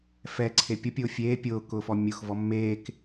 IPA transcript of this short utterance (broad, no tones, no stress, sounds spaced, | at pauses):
f ɛ ǀʰ e pʲ ʊ pʲ ʊː fʲ eː pʲ ʊː k ʊː f ɔ mʲ ʊ x v ɔ mː eː k